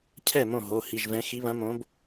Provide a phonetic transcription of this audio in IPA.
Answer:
cʰɛ˥˩mõ˥˩ ɦo˩˧˩hi˩˧˩ʒvɛ̃˨˦ xi˨˦βɐ̃˨˦ mõ˨˦b

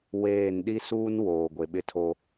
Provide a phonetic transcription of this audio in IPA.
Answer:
weː˦˨n ɗi˦suː˦n woː˨ɡʷe˨ɓɪ˦tʰo˦

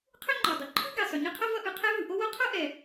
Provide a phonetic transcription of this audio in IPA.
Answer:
qʰʏ˥ŋ͡ǃɔ˩ dˤʏ˩ ǃʰɯ˥ɡɛ˩sˤʏ˩ ɲɯ˥qʰʌ˥vʌ˥ ʔɯ˩qʰɛ˥vɯ˩ ʔo˥wo˥ qʰʌ˥ʔɛ˩

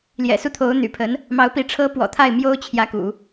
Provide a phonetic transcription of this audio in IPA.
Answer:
ljɛ̰˨˩su˥˩t̪ʰo˧˥ʊ̯ n̪y̰˨˩pʰə˧˥n | mɑ˧˥ʊ̯pi˧˥ ʈ͡ʂʰɤ˧˥pwɔ̰˨˩ t̪ʰa˥˩ɪ̯mjo˥ʊ̯t͡ɕʰjä˧˥kṵ˨˩˦

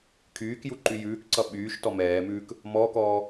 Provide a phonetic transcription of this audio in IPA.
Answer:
kʰyːkju ǃyjʉːkǀʌ ɓyːʃ tɔmɛːmʉːk | mɔːkɔː

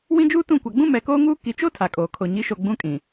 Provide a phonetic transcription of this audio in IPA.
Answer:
wĩ˦d͡ʒuː˦tũ˦˨ kʷa˨ɡ͡bũ˦ mɛ˨koː˦ŋuː˦ ki˨t͡ʃo˦ tʰa˨kʼoː˨kʰo˨ ɲi˨˦ʃo˨ ɡ͡bũ˦kʼĩ˨

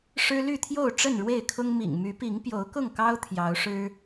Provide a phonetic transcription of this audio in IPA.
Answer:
ʂɻ̩˦ly˥˨t̪ʰjo˥˨ʊ̯ ʈ͡ʂə˥˨nɻwe˥˨ɪ̯kʰʊ˦ŋ mḭ˨˩ŋmy˨˦pi˨˦ŋ pjo˨˦ʊ̯kʊ˥˨ŋkɑ˦ʊ̯ t̪ʰjɑ˨˦ʊ̯ʂɻ̩˦

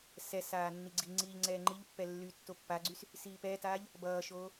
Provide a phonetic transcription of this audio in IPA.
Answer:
sɛsaː nːiɡ͡ǀiŋ͡ǀiːʎ ŋ͡ǀɛːŋ͡ǃiʎpːɛ lːy tːopːaɡ͡ǀys | siːpɛtaːʎ | bʌːʃoː

